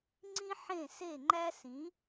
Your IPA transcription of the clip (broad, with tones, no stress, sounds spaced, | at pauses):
ŋ͡ǀ ĩ˥ ħ ẽ˥˩ s e˥˩ ŋ͡ǃ æ˥ s ĩ˩˥